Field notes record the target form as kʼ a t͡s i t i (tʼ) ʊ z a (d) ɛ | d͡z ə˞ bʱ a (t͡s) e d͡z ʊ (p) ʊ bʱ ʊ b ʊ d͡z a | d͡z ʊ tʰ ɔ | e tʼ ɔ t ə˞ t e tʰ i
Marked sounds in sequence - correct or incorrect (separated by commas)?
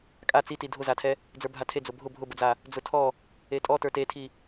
incorrect, incorrect, incorrect, incorrect